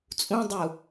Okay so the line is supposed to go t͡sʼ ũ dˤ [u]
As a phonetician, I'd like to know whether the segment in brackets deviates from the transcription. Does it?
no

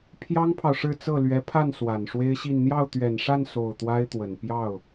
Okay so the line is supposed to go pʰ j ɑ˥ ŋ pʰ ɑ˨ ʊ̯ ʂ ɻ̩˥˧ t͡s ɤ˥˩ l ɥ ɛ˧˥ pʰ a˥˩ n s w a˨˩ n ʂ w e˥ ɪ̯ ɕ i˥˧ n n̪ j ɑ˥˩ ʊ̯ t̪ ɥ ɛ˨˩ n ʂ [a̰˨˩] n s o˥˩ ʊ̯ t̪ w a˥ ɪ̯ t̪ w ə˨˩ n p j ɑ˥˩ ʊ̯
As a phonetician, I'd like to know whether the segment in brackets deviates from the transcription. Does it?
yes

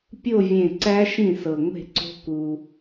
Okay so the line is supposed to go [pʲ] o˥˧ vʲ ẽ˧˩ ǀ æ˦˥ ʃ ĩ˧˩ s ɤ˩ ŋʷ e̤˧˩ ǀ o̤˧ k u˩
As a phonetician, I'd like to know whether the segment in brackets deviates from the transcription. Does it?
no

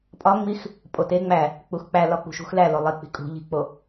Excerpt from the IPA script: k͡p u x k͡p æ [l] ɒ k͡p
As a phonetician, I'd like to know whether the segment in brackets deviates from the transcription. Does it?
no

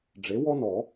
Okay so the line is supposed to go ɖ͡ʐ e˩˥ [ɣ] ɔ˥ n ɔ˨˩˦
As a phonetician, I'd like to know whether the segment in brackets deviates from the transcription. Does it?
yes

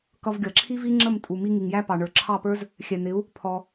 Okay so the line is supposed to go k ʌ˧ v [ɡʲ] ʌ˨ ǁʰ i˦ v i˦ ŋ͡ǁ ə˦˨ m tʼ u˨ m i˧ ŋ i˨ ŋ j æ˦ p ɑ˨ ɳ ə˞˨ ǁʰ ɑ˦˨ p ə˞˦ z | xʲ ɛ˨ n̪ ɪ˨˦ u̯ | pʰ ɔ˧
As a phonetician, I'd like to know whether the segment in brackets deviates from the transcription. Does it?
no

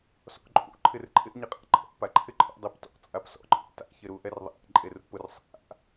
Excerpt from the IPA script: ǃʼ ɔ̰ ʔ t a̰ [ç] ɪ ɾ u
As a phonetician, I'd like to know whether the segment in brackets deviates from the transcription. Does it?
no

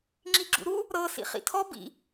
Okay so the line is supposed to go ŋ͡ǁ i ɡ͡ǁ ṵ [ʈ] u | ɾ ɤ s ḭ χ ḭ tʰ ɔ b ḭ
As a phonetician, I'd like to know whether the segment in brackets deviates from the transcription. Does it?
yes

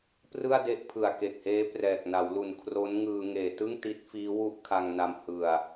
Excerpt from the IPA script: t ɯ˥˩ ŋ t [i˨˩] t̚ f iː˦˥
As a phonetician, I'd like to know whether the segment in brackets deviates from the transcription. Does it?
yes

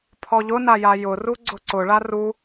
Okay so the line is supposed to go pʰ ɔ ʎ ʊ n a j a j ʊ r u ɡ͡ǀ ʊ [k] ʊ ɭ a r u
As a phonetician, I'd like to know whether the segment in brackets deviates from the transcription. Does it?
yes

